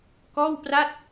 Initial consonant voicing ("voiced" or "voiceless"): voiceless